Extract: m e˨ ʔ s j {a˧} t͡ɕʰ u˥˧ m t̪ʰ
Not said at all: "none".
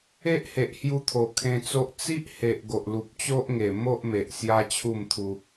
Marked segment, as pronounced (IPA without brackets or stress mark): a˦